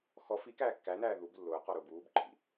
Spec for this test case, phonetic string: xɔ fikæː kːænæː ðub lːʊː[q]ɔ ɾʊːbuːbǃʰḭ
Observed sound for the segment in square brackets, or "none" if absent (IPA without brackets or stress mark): q